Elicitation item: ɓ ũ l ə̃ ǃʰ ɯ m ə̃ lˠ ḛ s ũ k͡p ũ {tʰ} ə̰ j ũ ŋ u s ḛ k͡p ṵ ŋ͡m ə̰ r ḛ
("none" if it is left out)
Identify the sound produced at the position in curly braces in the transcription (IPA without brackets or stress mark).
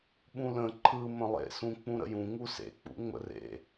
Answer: ɾ